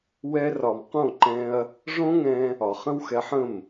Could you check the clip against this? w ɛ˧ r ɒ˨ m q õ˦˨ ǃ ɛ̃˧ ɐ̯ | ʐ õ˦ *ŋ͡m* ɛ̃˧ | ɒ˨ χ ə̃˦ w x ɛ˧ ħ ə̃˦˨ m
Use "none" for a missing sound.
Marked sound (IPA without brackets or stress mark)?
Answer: ŋ